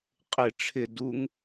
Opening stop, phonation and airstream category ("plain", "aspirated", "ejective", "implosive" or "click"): ejective